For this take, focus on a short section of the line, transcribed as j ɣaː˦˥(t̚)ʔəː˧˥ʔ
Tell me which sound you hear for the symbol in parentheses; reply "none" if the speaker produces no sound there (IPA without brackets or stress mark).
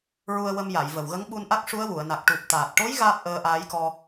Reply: p̚